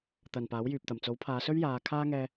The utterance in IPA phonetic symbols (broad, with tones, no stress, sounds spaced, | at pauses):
t̪ ɐ˨ n p aː˨˥ w j yː˨ p̚ t̪ ɐ˨˩ m t͡s o˨˥ w pʰ aː˨˧ s ɵ˥ ɥ j aː˨˧ kʰ aː˥ ŋ ɛː˧